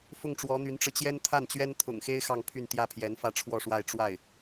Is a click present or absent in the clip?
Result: absent